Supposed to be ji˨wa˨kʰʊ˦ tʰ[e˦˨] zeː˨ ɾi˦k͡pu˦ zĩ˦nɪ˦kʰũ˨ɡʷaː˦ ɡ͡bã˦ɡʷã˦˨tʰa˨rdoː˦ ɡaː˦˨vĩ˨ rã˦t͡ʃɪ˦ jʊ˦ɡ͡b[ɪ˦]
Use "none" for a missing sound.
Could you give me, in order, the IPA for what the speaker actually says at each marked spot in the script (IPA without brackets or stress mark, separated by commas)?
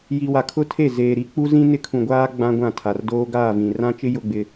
e˦˨, ɪ˦